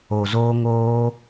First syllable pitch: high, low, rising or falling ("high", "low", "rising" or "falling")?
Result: low